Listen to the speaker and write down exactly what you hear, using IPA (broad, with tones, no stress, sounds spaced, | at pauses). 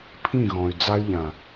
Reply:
pʰ ĩ˦˨ ɣ ɔ̃˨ y̯ d͡z a˦ y̯ ʎ ã˨